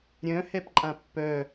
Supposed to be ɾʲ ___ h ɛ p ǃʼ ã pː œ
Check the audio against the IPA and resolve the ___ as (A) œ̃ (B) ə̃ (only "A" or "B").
A